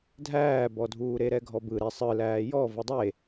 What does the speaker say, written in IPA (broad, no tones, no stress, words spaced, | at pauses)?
dʱæːbɔdʱuːɾe ɾɛɡʱɔbɯ ɾɛsˤɯlæː jɔ vɯdˤe